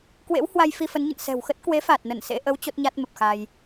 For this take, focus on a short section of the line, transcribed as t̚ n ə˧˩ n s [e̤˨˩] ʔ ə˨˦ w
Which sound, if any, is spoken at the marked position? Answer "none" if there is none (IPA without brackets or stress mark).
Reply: ḛ˧˥